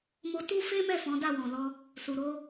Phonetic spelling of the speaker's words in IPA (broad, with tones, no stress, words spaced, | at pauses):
mo˧ tu˦fe˦mɛ˦˨ fɔ̃˨˦da˦˨wɔ̃˨lɔ˧ | su˨ɾo˧